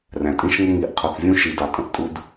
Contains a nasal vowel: yes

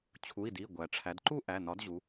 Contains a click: yes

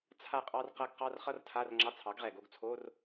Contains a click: yes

